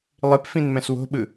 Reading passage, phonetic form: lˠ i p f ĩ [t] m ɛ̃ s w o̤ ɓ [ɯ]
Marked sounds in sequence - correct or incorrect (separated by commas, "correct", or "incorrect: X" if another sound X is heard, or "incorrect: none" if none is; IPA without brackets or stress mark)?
incorrect: n, correct